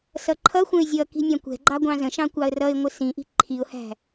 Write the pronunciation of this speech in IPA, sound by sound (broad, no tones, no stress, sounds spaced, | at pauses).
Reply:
s ʌ ǃʰ ʌ xʷ ə̃ ɪ̯ zʲ ʌ k i̤ nʲ ɑ̃ kʷ ɛ̤ ɡ͡ǃ ɑ ɡʷ ɑ̃ z ə̃ ʃ ɑ̃ kʷ ɑ ə̯ r ʌ ɪ̯ ŋʷ ɪ s ĩ ʔ i̤ ǃʰ i ʊ̯ h æ̤